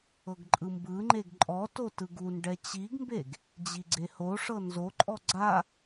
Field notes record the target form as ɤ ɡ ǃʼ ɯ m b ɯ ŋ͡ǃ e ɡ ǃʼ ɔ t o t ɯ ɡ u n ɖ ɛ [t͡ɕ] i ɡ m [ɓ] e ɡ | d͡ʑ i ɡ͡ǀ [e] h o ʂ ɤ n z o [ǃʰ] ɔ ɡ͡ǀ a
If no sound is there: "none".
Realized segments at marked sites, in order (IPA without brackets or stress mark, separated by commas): t͡ɕ, b, e, ǃʼ